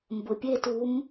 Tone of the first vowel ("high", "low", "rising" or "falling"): low